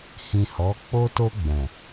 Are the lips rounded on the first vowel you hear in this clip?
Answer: no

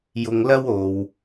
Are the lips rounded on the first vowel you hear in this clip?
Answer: yes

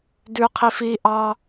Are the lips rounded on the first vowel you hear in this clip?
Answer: yes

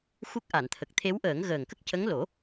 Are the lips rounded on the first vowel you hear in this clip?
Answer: yes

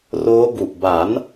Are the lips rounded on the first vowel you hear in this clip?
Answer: yes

